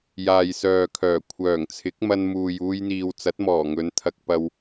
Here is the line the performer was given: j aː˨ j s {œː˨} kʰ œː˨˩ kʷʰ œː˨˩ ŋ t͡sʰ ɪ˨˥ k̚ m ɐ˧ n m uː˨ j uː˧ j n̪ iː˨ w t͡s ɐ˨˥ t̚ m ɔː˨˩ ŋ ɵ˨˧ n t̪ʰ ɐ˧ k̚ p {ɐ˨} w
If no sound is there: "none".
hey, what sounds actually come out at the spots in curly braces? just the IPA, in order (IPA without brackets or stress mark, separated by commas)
œː˨, ɐ˧